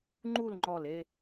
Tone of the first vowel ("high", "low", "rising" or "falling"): falling